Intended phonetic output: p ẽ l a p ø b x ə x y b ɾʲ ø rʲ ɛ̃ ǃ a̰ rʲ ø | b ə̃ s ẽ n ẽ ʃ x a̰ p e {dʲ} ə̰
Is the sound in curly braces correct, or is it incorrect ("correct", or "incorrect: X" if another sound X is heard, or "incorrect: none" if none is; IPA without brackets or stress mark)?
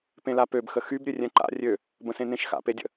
correct